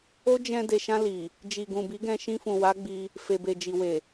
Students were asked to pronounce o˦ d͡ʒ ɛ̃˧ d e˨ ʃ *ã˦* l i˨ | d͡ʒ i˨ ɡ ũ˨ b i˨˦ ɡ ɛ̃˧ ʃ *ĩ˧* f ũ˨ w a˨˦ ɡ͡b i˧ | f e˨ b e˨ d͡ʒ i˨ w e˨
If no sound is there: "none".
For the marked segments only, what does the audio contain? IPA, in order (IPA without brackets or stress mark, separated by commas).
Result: ã˧, ĩ˧